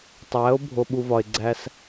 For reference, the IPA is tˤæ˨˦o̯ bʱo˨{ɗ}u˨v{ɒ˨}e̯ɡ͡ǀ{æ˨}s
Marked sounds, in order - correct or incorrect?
incorrect: ɓ, correct, incorrect: æ˦

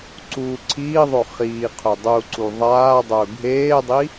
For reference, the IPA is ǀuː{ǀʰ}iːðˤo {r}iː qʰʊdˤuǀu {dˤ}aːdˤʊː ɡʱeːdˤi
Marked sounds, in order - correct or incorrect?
correct, incorrect: χ, incorrect: ðˤ

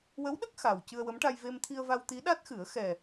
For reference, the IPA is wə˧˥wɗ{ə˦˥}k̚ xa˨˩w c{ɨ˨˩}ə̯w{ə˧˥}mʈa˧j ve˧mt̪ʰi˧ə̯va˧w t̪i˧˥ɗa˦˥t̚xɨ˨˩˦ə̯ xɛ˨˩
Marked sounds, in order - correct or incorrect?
correct, incorrect: ɨ˧, correct

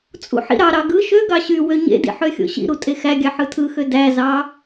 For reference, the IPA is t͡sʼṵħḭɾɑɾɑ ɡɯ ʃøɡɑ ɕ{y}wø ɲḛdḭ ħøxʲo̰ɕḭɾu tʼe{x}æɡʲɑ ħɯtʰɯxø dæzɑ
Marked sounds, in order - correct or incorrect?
correct, correct

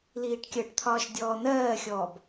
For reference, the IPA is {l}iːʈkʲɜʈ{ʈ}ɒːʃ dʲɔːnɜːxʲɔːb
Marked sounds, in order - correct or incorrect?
correct, incorrect: t̪ʰ

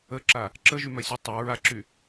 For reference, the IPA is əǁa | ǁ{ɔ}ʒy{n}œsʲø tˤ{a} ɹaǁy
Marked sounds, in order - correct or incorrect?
incorrect: ə, incorrect: m, correct

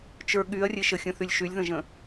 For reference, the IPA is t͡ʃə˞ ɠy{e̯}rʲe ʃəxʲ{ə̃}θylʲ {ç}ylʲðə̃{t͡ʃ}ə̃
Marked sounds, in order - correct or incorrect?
incorrect: ɐ̯, correct, incorrect: ʃ, incorrect: ʒ

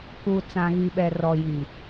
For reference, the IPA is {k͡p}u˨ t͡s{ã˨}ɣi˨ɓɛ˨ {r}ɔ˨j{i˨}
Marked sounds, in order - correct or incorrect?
incorrect: k, correct, correct, correct

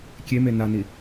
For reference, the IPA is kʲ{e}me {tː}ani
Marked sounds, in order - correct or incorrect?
correct, incorrect: n

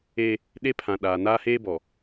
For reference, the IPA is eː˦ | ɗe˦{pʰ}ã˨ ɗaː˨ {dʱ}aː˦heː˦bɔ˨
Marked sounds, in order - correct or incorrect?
correct, incorrect: n

